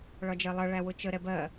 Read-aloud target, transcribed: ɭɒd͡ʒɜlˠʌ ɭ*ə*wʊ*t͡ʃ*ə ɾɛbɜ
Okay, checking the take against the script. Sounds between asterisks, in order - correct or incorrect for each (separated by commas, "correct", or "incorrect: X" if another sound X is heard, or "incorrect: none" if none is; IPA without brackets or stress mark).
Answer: incorrect: æ, correct